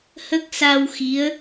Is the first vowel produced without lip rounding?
yes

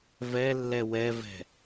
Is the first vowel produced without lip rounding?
yes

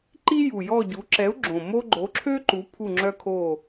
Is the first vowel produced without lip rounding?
yes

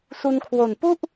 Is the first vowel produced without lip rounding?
no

